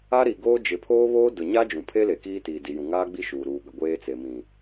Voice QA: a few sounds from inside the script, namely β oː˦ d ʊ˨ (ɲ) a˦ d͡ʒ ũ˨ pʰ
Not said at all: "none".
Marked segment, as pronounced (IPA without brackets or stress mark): ɲ